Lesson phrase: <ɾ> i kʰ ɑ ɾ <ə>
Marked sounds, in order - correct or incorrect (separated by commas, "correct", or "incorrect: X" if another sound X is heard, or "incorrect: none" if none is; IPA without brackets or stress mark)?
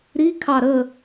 correct, correct